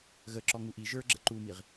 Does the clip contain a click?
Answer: yes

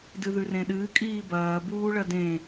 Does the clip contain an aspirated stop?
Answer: no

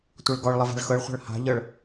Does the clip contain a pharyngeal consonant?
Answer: no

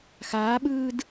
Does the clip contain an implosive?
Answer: yes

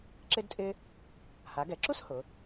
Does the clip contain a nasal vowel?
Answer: no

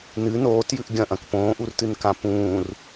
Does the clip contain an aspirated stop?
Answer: no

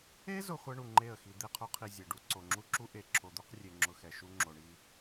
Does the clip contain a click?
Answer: yes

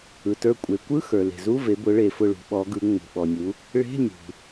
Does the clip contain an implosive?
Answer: yes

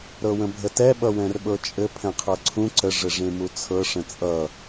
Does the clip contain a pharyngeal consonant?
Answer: no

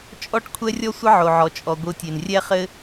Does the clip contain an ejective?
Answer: yes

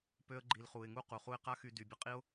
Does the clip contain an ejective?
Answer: yes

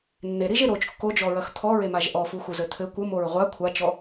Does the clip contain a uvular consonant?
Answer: yes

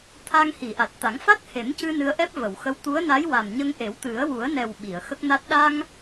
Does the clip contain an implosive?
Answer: yes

